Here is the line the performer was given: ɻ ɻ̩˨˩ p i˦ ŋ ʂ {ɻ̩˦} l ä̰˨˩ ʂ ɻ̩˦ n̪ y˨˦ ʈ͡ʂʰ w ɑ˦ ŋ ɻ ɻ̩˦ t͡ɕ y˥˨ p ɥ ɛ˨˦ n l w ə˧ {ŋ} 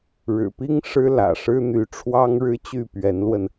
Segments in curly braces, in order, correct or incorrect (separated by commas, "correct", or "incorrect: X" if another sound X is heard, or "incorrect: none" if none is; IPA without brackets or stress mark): correct, incorrect: n